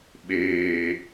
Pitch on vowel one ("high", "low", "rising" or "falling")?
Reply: high